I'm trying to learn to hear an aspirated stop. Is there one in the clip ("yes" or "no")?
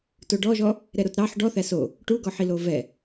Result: no